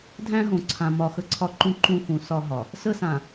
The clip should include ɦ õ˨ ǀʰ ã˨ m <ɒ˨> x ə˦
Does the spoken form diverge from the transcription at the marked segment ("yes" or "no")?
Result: no